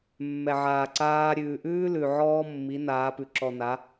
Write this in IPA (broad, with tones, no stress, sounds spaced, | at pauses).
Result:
mː ɛ˨ ʕ aː˨ ǀ aː˦ ɾʲ ʉː˨ ʔ ʉː˦ l ʉ˨ ʕ ɔː˦ mː i˨˦ n aː˨˦ p ʉ˨ ǁ ɔ˨ n a˨˦